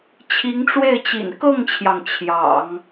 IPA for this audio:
t͡ɕʰ i˧˥ ŋ ʈ͡ʂ w e˥˩ ɪ̯ t͡ɕ ḭ˨˩ n k ɤ˥˩ ŋ t͡ɕʰ j ɑ˩ ŋ t͡ɕʰ j ɑ̰˨˩˦ ŋ

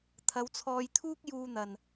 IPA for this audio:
t̪ʰ ɐ˨˧ w t͡sʰ ɔː˧ j t̪ʰ uː˥ k̚ j uː˧ n̪ ɐ˨ n

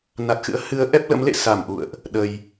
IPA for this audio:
n a˨˩ t̚ x ɨ̰˧˥ ə̯ h ɨ˨˦ ə̯ ʔ ɛ˦˥ p̚ l ə̰˧˥ m l ḛ˧˨ s a˧˩ m ʔ ṵ˧˨ ə̯ ʔ | ɗ ə˨˩ j

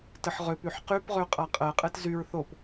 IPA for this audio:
t ə ħ ʁ ø p y ħ q y p ʁ ø qʼ a qʼ ɜ qʼ ɛ t z y ɹ θ o p

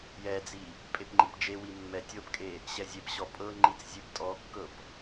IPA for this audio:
j ɛ d͡z i | pʼ e p ŋ͡ǃ i p d͡ʒ e w i mː ɛ tʲ ɤ p kʼ e | ɕ ɛ zʲ e p ɕ ɔ pʼ ɤ ŋ͡ǃ i t͡s zʲ e p tʼ ɔ kː ɤ p

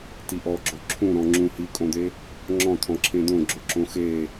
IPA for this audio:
t i ʔ ɔ ɡ͡ǁ o ǁʰ ũ ɾ ɔ̃ ŋ͡ǁ ũ h i kʼ õ d̪ e | ŋ͡ǁ ɔ̃ t̪ʰ ɔ̃ ǁʰ ẽ d̪ õ ɡ͡ǁ o ǁ õ x e

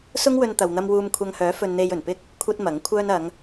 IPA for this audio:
s ʊ˥ ŋ w ɵ˧ n t̪ ɐ˨ w n̪ ɐ˧ m w uː˧ m kʷʰ ɐ˧ ŋ h œː˨˥ f ɵ˧ n n̪ e˧ j ɵ˨˩ n p ɪ˥ k̚ | kʷʰ ɐ˥ t̚ m ɐ˨˥ ŋ kʷʰ œː˧ n ɐ˨˧ ŋ

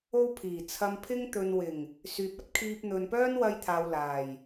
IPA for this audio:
o˧ w pʰ iː˨˩ t͡sʰ ɐ˧ m pʰ ɪ˥ ŋ t̪ ɵ˨ n w ɪ˨˩ ŋ | s yː˨ p̚ ɐ˥ t̚ kʰ iː˧ p̚ n̪ ɵ˨ n p œː˥ n w ɐ˧ j t̪ʰ aː˨ w l aː˨˩ j

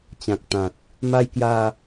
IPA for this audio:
t͡ɕ ã˨ k̚ t̪ ã˨ t̚ | m a˧ j k j a˧

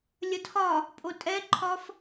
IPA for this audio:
lʲ ə tʰ ɒ | pʼ o tʼ ɛ ǃʰ ɒ f

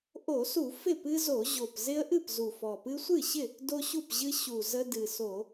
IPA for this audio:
ʔ o˧˩˧ s u˧˩˧ f ɪ˥˩ p ɨ˦ z o˧˩˧ ʑ o˨˩ p z ɪ˦ ə̯ ʔ ɨ˥˩ p z u˨˩ f ɔ˨˩ p ɨ˦ sʷ ɨ˥˩ ɕ ɪ˥˩ | d o˦ ɕ u˥˩ p ʑ ɨ˦ ɕ u˨˩ z ə˦ d ɨ˨˩ s o˧˩˧

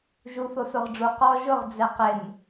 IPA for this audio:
ʒ u θ o s o ʁ ɖ͡ʐ u q ɔ ʒ ʊ ʁ d͡z ɛ q ɪ n

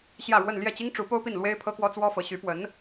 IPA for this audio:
ɕ j ä˥˧ ɻ w ə˥˧ n l j ɛ˥˩ t͡ɕ i˥ ŋ ʈ͡ʂ u˧˥ p o˥ ʊ̯ p i˥˩ n l w e˥ ɪ̯ pʰ ɤ˥ k w ɔ˥ t͡s w ɔ˥ f ɤ˧˥ ɕ y˧˥ p w ə˧˥ n

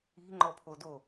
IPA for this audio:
i̤ ŋ͡ǃ ɔ pʰ o d o

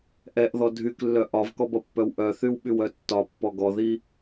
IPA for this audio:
ʔ ɛ ʔ ð ɔ dʱ y k lː œ ʔ ɒ v k ɔ b ʌ pː œ w ʔ œ θ y w ɓ y w œ tː ɒ pː ɔ ɡ ɔ ð i

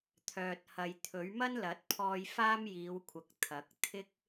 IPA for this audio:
t̪ʰ œː˨ t̚ h ɐ˨ j t̪ʰ ɵ˨˥ ɥ m ɐ˥ n l ɐ˨˥ t̚ pʰ ɔː˧ j f aː˥ m j iː˨˧ w kʷʰ ɐ˨ k̚ t̪ʰ ɐ˨˥ k̚ t̪ʰ ɪ˥ k̚

